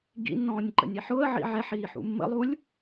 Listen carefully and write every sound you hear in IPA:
ɡ ḭ nː ɔ̃ː nʲ ǃ ə̰ nʲ e ħ ʊː ə̯ ʕ ḭ ʕ ɛ ħ iː ħ ṵ mː ə̰ lˠ u lʲ

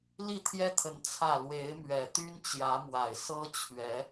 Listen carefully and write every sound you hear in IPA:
l i˥˨ t̪ʰ j ɛ˦ t̪ʰ ə˨˦ n t͡sʰ ä˥˨ l w e˨˦ ɪ̯ m ɥ ɛ˨˩ t̪ y˦ n t͡ɕ j ä˨˦ m w a˨˩ ɪ̯ s ɤ˦ t͡ɕʰ ɥ ɛ˨˦

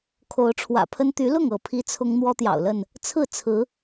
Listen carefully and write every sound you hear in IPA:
kʰ o˨˦ ʊ̯ ʈ͡ʂʰ w ä̰˨˩ pʰ ə˦ n t̪ y˨˦ l ʊ˥˨ ŋ ɤ˥˨ pʰ i˦ t͡sʰ ʊ˦ ŋ n̪ w ɔ˦ t̪ j ɑ̰˨˩ ʊ̯ l ə˥˨ n | t͡sʰ ɹ̩˥˨ t͡sʰ ɹ̩˨˦

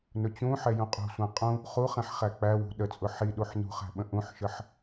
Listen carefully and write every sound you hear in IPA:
n ʊ t͡ɕ ũ ħ ɛ j ũ qʼ ṳ sʷ æ̃ qʼ ũ | χ u χ ɛ̃ ħ χ æ k͡p æ w ṳ ɗ ə t͡sʼ ʊ ħ i ɗ u ħ n ṳ χ æ̤ ɓ ə̃ ʔ ũ ħ ʃ ə ħ

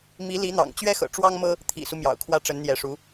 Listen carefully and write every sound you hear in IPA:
m i˧˥ l i˧˥ n̪ ɑ̰˨˩ ŋ t͡ɕ ɥ ɛ˥ x ɤ̰˨˩ ʈ͡ʂ w ɑ˥ ŋ m ɤ˥ | t̪ʰ ḭ˨˩ s u˦ m j ɑ̰˨˩ ʊ̯ kʰ w ä˥ ʈ͡ʂ ə˧˥ n n̪ j ɛ˧˥ ʂ u˧˥

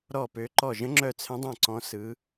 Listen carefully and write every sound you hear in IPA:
ɾ ɔ˧˩ p ø˨˦ ǃ ɔ˧˩ ʒ ə̃˨˦ ŋ͡ǁ œ˧˩ t͡sʰ ə̃˨˦ dˤ œ̃˧˩ ǀ ɔ̃˨˦ s ɯ˨˦

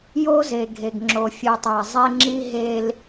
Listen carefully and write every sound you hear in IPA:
j o˦ z e˨ ɡʱ e˨ ɡ ŋ͡ǁ o˨ fʲ ɯ˨ tˤ æ˨ zˤ e˦ ŋ͡ǁ i˦ ɦ e˦ l

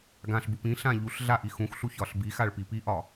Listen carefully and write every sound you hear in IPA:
ɡ ã ɬ b u p ĩ ɬ ã ʎ u ɬ ɮ a ʔ i x ũ x ɬ u ç ɒ ɬ b i x a ɭ p i p i ʔ ɒ

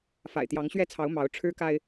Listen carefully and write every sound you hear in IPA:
f a̰˨˩ ɪ̯ t̪ j ɑ˨˦ ŋ ɕ ɥ ɛ˦ t͡sʰ ɑ˨˦ ʊ̯ m ɑ˨˦ ʊ̯ ʈ͡ʂʰ ɻ̩˦ k a˦ ɪ̯

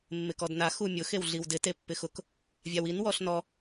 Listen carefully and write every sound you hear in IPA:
mː ɪ k ɔ d n a x u mʲ ʊ x e w ɮ i w d ɪ t e pː ɪ x ʊ k | vʲ a w i n w ɔ ɬ n ɔ

